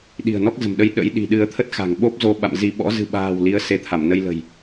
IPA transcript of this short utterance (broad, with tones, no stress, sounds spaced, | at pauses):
ɗ i̤˨˩ ə̯ n ɔ˦˥ k̚ z ə̤˨˩ m ɗ ə˧ j ɗ ə̰˧˥ j ɗ i̤˨˩ ɗ ɨ˧ ə̯ t̪ʰ ə˦˥ t̚ x a̤˨˩ ŋ ɓ o˦˥ p̚ z o˧ ɓ a̰˧˨ m z i˧ ɓ ɔ̰˧˥ z ɨ̤˨˩ ɓ a̤ː˨˩ w l i˨˦ ə̯ s e˨˦ t̪ʰ a˧˩ m n ə˧ j l ə̤˨˩ j